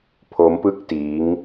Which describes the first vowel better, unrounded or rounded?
rounded